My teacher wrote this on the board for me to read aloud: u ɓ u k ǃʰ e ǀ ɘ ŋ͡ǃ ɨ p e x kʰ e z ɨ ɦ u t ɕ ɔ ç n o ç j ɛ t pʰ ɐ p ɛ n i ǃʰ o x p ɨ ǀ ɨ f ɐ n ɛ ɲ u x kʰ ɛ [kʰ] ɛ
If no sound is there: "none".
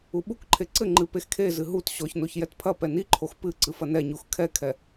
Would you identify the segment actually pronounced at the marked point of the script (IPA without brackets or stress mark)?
kʰ